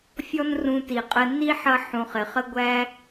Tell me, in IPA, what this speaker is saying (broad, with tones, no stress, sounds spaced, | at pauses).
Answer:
fʲ ɔ˥ n r ũ˧ t i˩ qʼ ə˧ n i˥ ħ ʌ˧ ħ ũ˩ χ ɪ˩ χ ə˥ ɡʷ æ˥